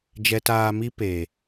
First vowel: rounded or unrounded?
unrounded